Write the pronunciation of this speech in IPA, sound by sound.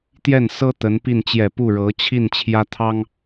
t̪ j ɛ˥˩ n s ɤ˥ t̪ ə˧˥ n p i˥˩ n t͡ɕ j ɛ˨˩ p u˥˩ ɻ ɤ˧˥ t͡ɕʰ i˥˩ n t͡ɕʰ j ä˥ t̪ʰ ɑ˥ ŋ

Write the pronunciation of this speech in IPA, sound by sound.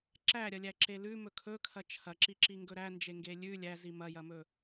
ǁ æ ɾʲ ɐ lʲ æ ǁ e l ʉ m ɵ kʰ ɵ kʰ ɐ t͡ʃʰ ɐ ǁ i ǁ i ŋ ɡ ɵ ɾ æ n d͡ʒ e ŋ ɡ e lʲ ʉ lʲ æ z i m ɐ j ɐ m ɵ

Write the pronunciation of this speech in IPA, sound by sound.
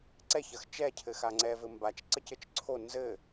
ǀ ɛ ç ɐ x t͡ʃ ɛ cʰ ɘ x a ŋ͡ǀ ɛ v ɘ m b a t͡ʃ ǀ ə c ɘ t͡ʃ ǀʰ o n z ɘ

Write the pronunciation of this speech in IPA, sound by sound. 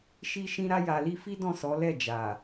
ʃ i˦ ʃ ĩ˦ ɾ a˧ j a˨ l i˧ f i˦ d ɔ̃˦˨ s ɔ˨˦ l ɛ˦˨ d͡ʒ a˨

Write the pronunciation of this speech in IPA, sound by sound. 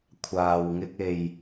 kʷʰ aː˨ w ŋ ɪ˧ k̚ e˨ j

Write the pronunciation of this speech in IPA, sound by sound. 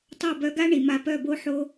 tˤ o˦˨ b œ˧ ɡ a˦ ɳ i˨ m a˧ p œ˦˨ b o˦ ħ o˦

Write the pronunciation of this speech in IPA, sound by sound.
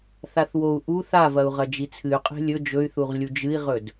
θ a θ w o u̯ ʔ u θ a v ɐ u̯ ʁ ɐ d͡ʒ i t͡sʰ ɨ y̯ qʼ e̤ lʲ ɵ d͡ʒ ɵ y̯ θ u ʁ lʲ u d͡ʒ ɨ i̯ ʁ ɵ d

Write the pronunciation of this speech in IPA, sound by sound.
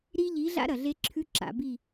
ɾ i˦ ʎ i˨˦ ɮ a̰˦ ɾ ɐ˨ ɮ e˦ ǁʰ ʉ˦ ǁ a̰˨ b i˦˨

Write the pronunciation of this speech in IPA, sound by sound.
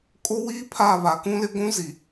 kʼ o˦ w iː˦ pʰ a˦˨ β a˨ k ũ˦ l ɪ˦ ɡʷ ũ˦ z i˨

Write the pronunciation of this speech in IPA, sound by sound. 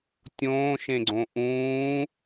tʲ õː ʃ ẽ ɡ͡ǀ õ ʔ ũː

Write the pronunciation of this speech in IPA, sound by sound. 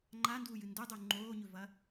ŋ͡ǃ a n d uː j ɨ n d u dˤ u ŋ͡ǃ oː ɲ ɵ v ɐ

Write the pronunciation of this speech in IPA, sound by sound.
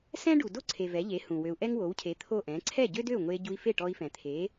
s ɛ̃˥ ɖ u˩ d o˥˩ ǀʰ e˩ v ɛ˩˥ ʎ e˩˥ h ũ˩ w ø˩ u̯ ʔ ɛ˥ ŋ w o˩˥ w cʰ e˩˥ t̪ʰ o˥˩ ʔ ɛ̃˩˥ ǀʰ ɛ˥˩ ɟ ø˥ d ø˥˩ u̯ ŋʷ e˧ ɟ u˧ i̯ f e˥˩ ʈ ɔ˧ i̯ f ɛ̃˩ t̪ʰ e˩˥

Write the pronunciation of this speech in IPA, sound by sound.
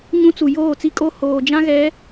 ɲ ũ˦ t͡s u˨ j oː˦˨ t͡s i˦ kʼ o˦˨ h oː˨ d͡ʒ ã˦ ɣ ɛ˨˦

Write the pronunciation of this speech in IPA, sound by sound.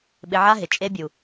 ɓ ɪ˧ ʕ a˦ ɦ ɪ˨ t͡ʃʼ e˧ bʲ u˨

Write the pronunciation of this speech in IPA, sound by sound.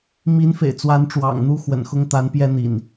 m i˨˦ n f ḛ˨˩ ɪ̯ t͡s w a˨˦ n ʈ͡ʂ w ɑ̰˨˩ ŋ n̪ u˥˨ x w ə̰˨˩ n x ʊ˦ ŋ t̪ a˨˦ n p j ɛ˦ n̪ ḭ˨˩ n

